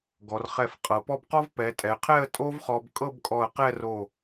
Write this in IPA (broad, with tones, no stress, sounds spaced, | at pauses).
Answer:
ɡ ɔ˩˧ r χ ɛ˧˩ f qʼ ɤ˩˧ p ɔ˥˧ b q ɔ˥ v p ɛ˩˧ tʼ ɛ˩˧ qʰ ɛ˥˧ ə̯ tʼ o˥ v χ ɔ˧ b kʼ ɤ˥˧ b kʼ ɔ˧˩ ə̯ q ɛ˥˧ r o˧˩